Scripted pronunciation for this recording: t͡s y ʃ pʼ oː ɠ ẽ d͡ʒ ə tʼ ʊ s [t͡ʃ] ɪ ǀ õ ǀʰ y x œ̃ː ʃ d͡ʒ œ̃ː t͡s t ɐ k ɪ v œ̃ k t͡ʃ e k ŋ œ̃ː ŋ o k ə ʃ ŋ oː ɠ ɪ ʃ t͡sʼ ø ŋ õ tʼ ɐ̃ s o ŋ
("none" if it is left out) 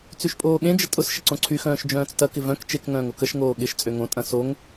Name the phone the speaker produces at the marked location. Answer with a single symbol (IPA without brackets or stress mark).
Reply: ʃ